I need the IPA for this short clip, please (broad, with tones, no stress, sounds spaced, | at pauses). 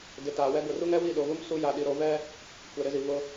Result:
d ɪ˨ t aː˨ w ɛ˦ ɡ ʊ˨ r u˦ ŋ ɛ˦ w i˦˨ ɗ o˨ ɣ u˦ m s u˦ j a˨ ɗ i˨ ɾ o˦ v ɛ˦ | kʷ ɛ˨ ɾ ɪ˦ z i˨ v ʊ˦